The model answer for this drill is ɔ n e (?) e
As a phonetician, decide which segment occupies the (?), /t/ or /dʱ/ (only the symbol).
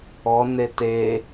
t